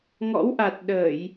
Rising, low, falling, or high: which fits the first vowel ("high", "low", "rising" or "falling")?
rising